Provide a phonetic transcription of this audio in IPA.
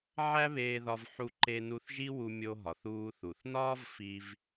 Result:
ʕ æ˥ β eː˧ ð ɒ˧ v ħ u˧ ǃ e˧ n u˧ θ ʒ i˥ w u˧ mʲ o˧ ɦ ɒ˩ θ uː˧ θ u˩ θ n ɒː˥ v f i˧ v

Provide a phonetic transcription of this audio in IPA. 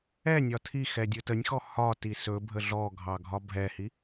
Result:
ɛ nʲ ɒ tʰ i x ɛ dʲ ɵ t ə nʲ x ɔ h ɒ t i s ɵ bʱ ə ɮ ɔ ɡʱ ɑ ɡʱ ɒ bʱ ɛ h i

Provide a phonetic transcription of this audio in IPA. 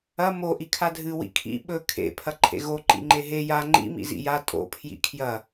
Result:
ɐ m o ʔ i kʰ a dʱ ɨ w ḭ kʰ ḭ ɓ ɵ kʰ ḛ pʰ ɐ ǃʰ ḛ ɣ o ǃ ḭ ŋ͡ǃ e ɦ e j a ŋ͡ǃ ḭ m ḭ z ḭ j a tʼ o̰ pʰ j ḭ kʰ j ɐ

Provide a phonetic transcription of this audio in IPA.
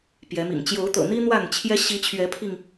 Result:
p j ɛ˨˦ m ḭ˨˩ ŋ t͡ɕ j o˨˦ ʊ̯ t̪ ɤ̰˨˩ n̪ i˦ n̪ w a˥˨ n t͡ɕʰ j ɛ˦ ɕ i˨˦ t͡ɕʰ ɥ ɛ˨˦ pʰ i˧ ŋ

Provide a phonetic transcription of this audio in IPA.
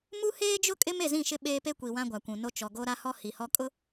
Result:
m u˦ h eː˦ d͡ʒ ʊ˦ kʼ ɪ˦ m e˦˨ z ĩ˦˨ ʃ ɪ˦ ɓ eː˦ p e˦ kʷ i˨ w ã˦ ɡʷ a˨ kʷ ũ˨ n o˦ t͡ʃ ɔ˨ ɡ o˦ ɾ a˦ h ɔ˦ h i˨ h ɔ˦ kʼ ʊ˦

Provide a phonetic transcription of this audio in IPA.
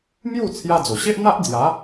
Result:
m j u˥˧ t͡sʰ j a˦ d͡z o˨˩ ɕ e˦ ʔ n̪ a˦ ʔ d͡z j a˨˦

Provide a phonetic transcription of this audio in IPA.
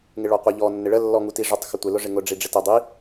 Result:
ŋ ɪ ɭ ɔ qʷ ɪ ʎ ɔ nː ɪ ɭ ə lː ɔ ŋ u t i ʐ ʊ tˤ x ə tʷ ɪ l ʊ ʐ ɪ ŋ ʊ ɖ͡ʐ i ɖ͡ʐ ɪ t ə dˤ i

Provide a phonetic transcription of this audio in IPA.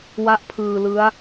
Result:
w a˥˩ ʔ pʰ ɯː˧ l ɯ˦˥ a̯

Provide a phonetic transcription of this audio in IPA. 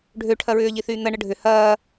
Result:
ɖʱ ø ʈʰ ɐ ɹ ʏː ʎ i θ yː n̪ ɐ ɳ ə ɖʱ ʏ h ɐː

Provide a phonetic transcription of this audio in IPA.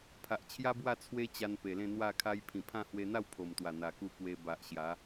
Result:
pʰ a˨ ʔ t͡ɕʰ j a˦ b w a˥˧ t͡sʰ w e˦ t͡ɕ a˧ n p e˨˩ l ẽ˥˧ n̪ w a˥˧ kʰ a˦ j pʰ ĩ˨˩ pʰ ã˥˧ h w e˧ n̪ a˥˧ w pʰ o˨˩ m t̪ w a˨˩ n̪ a˨˩ k u˧ k w e˧ b a˨ ʔ ɕ j a˨˦

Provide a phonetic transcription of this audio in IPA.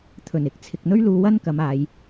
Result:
t̪ʰ ɵ˨˩ n ɪ˨˥ k̚ t͡sʰ ɪ˨ k̚ n̪ ɵ˥ ɥ l uː˧ w ɐ˥ n k ɐ˨˧ m aː˨˧ j

